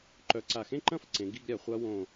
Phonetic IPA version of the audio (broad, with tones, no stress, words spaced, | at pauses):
ǃœ˨˦ǀa˧˩xẽ˥˧ǃɐ̃˥˧f ǀẽ˨˦ɡi˥˧ɡɾʲa˨˦χʷa˦˥ wõ˥˧